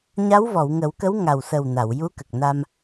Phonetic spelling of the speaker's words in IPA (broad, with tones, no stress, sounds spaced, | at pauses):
ɲ a˧˥ w v ɔ˨˩˨ w ŋ ə˨˩˦ w k ə˧˥ w ŋ a˨˩ w s ə˨˩ w n a˨˩˨ w j u˧˥ k ə˨˩ k̚ n a˧ m